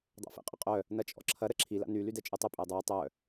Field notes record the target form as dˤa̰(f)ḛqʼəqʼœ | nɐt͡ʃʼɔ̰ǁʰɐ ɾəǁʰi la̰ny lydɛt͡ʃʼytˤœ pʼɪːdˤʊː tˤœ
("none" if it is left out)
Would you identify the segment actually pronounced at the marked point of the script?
f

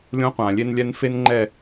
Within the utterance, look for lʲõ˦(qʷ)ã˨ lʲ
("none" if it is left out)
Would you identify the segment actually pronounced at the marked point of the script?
qʷ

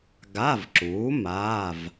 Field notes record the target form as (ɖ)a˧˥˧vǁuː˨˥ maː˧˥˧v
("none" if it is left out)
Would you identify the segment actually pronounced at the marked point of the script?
ɡ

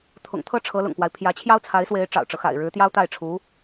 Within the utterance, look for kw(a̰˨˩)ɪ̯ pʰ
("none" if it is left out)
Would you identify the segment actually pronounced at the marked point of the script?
a˦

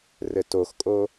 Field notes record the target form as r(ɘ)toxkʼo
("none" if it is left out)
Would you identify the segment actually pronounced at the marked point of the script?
ɘ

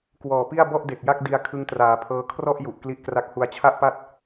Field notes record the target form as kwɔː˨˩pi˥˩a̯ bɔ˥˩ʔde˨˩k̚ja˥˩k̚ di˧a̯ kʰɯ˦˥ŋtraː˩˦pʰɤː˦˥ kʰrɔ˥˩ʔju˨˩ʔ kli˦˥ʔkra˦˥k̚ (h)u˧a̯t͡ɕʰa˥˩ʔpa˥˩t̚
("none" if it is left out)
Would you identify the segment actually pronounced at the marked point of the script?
h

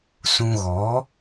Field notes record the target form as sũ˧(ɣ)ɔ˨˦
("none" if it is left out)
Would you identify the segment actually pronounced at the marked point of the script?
ɣ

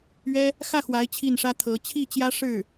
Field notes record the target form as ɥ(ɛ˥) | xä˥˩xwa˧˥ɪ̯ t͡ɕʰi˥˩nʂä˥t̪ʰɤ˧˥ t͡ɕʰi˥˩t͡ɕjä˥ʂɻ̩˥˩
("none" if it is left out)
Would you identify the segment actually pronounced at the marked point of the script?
ɛ˥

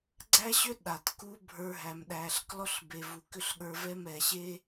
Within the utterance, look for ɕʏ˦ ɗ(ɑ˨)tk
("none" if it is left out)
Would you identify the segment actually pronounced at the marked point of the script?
a˨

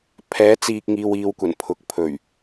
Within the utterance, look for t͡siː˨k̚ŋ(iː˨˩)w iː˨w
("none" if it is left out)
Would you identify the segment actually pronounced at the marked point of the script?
iː˨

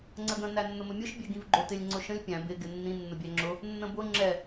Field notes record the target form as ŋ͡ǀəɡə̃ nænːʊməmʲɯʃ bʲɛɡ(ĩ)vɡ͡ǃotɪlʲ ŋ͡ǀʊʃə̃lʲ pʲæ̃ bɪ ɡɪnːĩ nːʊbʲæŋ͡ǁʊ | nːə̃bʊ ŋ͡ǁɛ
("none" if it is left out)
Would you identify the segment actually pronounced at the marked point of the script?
ĩ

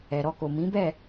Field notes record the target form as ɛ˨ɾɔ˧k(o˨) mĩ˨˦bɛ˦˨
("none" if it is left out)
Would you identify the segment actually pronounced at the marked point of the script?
o˨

